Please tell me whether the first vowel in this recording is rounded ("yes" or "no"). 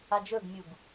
no